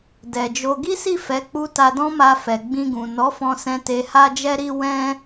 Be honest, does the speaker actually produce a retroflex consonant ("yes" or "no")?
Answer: no